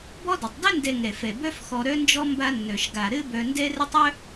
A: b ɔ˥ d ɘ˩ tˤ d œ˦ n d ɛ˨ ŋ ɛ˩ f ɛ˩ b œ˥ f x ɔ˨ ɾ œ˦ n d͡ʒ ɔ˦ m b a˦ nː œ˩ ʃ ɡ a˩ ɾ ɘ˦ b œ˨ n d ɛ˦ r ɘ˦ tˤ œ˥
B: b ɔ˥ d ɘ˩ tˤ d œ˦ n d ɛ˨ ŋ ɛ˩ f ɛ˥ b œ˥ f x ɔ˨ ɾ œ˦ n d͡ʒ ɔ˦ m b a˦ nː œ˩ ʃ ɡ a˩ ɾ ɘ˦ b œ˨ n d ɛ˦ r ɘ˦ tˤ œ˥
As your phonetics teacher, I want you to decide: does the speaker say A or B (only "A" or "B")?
A